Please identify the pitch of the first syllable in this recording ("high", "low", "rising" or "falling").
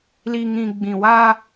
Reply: low